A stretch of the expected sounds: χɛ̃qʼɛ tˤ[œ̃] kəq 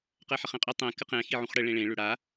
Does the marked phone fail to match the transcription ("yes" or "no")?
yes